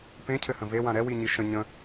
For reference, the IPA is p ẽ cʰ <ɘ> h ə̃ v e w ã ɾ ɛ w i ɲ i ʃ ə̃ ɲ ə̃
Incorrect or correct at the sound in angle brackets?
correct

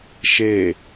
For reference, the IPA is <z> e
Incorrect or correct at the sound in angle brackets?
incorrect: ʃ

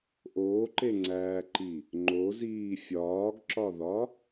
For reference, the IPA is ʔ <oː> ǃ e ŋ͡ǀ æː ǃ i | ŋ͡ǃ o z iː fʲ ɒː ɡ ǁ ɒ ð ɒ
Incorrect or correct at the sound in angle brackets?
correct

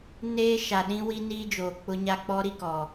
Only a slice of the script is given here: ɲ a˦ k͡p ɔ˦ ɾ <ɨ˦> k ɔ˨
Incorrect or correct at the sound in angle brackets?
incorrect: i˦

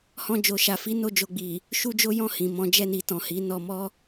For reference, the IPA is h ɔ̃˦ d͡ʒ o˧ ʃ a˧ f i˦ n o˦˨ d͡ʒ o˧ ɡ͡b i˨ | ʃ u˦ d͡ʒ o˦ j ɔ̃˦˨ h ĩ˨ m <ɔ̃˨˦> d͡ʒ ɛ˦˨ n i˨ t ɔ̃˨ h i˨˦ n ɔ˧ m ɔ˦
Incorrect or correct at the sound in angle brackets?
correct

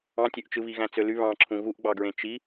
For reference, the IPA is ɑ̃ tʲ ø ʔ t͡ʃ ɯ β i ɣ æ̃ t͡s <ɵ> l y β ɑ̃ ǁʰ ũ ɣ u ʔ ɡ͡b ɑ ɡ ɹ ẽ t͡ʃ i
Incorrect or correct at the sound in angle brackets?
incorrect: ø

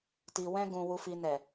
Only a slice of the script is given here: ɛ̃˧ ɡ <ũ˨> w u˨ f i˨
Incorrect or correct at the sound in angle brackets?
correct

